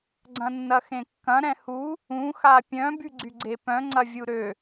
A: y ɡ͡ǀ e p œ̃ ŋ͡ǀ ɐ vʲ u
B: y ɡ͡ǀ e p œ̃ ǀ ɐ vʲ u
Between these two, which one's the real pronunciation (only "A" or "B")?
A